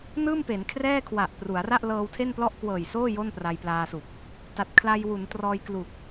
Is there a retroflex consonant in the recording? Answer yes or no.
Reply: no